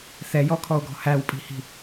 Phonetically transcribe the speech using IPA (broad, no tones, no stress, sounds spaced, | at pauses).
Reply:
θ ɛ j ɔ kʰ ɔ o̯ ɡ ɔ̤ h æ w pʼ i̤ h i̤